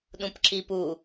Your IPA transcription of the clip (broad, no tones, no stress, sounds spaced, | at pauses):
ɗ ũ p ǁ i p u